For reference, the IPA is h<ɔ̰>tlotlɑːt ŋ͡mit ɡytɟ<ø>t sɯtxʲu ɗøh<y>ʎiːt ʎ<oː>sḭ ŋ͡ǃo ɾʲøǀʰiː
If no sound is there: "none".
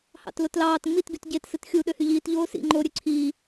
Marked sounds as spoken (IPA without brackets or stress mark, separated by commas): ɑ̰, e, y, oː